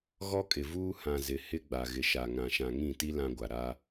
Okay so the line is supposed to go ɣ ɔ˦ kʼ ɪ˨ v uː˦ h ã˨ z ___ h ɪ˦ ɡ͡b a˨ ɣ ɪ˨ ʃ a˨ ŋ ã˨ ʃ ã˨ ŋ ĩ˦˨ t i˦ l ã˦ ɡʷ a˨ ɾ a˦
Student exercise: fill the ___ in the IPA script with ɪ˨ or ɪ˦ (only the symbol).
ɪ˨